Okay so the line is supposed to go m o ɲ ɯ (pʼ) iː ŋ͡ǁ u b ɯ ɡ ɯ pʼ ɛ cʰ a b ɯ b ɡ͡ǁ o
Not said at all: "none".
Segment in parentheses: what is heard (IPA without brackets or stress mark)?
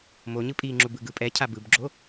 pʼ